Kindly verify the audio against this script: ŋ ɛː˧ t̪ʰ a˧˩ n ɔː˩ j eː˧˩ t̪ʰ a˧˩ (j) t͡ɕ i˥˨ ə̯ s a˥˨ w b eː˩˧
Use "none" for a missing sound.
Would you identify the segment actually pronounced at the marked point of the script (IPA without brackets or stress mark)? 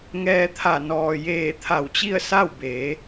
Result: w